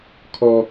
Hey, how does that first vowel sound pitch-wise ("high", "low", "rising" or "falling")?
high